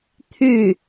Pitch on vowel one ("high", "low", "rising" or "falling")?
falling